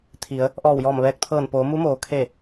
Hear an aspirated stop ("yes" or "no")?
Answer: yes